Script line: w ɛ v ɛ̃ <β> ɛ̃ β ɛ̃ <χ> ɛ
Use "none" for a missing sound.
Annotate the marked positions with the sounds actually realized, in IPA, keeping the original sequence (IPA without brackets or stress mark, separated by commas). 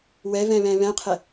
β, qʰ